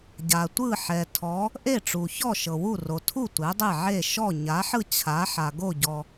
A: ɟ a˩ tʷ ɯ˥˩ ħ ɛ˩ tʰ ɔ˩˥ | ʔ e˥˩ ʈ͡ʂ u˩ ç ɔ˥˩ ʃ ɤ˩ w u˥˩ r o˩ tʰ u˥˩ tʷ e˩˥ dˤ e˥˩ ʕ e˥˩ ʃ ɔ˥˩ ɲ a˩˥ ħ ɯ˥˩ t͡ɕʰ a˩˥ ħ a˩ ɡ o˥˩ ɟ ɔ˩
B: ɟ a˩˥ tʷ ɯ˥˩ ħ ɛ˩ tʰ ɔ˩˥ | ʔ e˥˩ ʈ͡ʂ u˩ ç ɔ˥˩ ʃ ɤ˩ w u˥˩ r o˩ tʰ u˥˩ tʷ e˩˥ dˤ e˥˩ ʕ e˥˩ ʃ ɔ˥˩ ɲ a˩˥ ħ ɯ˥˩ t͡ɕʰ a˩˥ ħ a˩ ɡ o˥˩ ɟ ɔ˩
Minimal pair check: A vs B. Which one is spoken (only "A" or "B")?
A